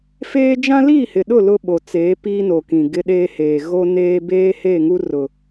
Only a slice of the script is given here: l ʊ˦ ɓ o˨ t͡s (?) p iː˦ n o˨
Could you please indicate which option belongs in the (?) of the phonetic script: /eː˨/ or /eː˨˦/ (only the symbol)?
eː˨˦